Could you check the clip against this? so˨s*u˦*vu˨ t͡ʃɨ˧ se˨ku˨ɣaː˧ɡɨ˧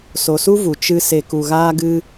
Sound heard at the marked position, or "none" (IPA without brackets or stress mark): u˦